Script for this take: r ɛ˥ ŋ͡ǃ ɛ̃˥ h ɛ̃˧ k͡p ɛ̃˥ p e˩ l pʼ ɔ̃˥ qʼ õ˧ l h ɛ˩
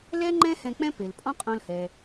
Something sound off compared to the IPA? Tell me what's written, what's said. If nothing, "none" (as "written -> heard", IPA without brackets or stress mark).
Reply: r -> l